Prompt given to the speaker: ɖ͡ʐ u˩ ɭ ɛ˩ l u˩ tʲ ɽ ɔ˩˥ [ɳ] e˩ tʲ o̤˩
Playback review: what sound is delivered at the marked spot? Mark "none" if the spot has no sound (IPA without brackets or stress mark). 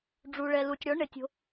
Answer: ɳ